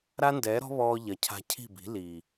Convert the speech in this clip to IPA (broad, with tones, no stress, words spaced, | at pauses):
ɾa˦ndɛː˨˦ɾɔ̤˦ βɔː˧ ʎɐ˨cʰa̤˧ cʰi̤˦˨bi̤˨˦ liː˨